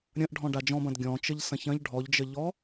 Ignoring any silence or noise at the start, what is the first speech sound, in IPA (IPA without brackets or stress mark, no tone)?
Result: ɾʲ